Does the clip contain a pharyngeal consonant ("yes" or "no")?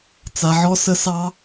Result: yes